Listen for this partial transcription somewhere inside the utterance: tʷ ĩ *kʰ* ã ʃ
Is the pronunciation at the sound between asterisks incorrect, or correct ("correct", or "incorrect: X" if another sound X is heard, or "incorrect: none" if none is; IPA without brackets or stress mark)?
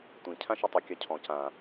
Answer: incorrect: cʰ